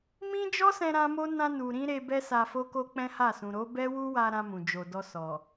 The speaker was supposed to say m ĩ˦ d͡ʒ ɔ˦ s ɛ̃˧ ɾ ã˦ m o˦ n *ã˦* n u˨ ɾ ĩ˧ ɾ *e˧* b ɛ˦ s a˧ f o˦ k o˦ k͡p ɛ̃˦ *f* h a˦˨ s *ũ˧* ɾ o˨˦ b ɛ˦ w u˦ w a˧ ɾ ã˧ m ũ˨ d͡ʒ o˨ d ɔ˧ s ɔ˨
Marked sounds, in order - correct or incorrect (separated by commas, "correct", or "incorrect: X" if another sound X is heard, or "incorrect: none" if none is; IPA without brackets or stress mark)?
incorrect: ã˧, correct, incorrect: none, incorrect: ũ˨